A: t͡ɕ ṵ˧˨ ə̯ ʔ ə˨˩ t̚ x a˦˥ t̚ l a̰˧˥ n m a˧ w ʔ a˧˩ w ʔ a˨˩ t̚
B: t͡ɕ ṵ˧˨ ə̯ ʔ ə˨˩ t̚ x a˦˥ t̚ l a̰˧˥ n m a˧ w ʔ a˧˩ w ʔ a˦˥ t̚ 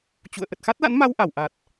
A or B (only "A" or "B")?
A